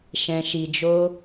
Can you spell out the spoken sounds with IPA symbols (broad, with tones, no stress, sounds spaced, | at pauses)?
ʃ ɛ̃˧ ʃ i˧ d͡ʒ o˦